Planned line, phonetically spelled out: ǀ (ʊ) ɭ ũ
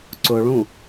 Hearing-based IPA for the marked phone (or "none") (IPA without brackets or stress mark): ʊ